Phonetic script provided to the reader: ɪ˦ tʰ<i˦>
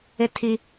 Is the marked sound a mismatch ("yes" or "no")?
no